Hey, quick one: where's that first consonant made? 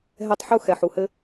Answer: throat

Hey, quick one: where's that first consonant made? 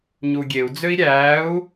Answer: palate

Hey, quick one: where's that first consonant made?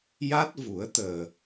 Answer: palate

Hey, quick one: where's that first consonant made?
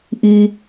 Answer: throat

